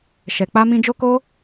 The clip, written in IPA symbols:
ʃ ɛ˧ k͡p a˦ m ĩ˦ d͡ʒ o˦ k o˦

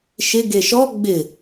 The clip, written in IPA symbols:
ʃ ɪ ɡ e ʃ ɔ ɡ͡b ɪ

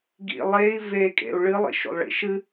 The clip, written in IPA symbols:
ɡ ḭ lˠ e i̯ v e kʼ ḛ u̯ ɭ ɨ lˠ ḭ ʃ o̰ lˠ ɭ ḭ ʃ ɨ

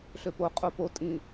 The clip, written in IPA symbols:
ɬ ø p o qʼ o p o tʼ ĩ

